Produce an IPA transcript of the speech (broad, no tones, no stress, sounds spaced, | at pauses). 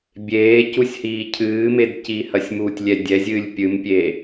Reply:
bʲ eː c u sʲ h iː cʰ ɨː m e d c iː h ɐ sʲ m uː tʲ lʲ ɛ dʲ ɛ zʲ ɨː lʲ pʲ ɨ m pʲ eː